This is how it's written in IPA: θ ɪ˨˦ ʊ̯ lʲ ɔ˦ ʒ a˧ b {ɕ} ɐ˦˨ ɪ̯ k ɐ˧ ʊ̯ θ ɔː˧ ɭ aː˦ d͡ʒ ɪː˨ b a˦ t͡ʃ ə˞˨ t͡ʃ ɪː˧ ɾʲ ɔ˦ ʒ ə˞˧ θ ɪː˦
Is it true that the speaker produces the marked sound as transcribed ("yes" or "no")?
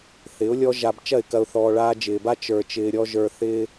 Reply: no